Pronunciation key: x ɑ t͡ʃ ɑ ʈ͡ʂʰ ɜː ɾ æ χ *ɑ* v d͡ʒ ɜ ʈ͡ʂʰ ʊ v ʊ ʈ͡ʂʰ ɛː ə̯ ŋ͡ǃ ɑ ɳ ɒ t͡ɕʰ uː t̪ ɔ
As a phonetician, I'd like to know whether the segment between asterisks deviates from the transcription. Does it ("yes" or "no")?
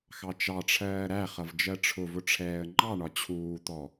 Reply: yes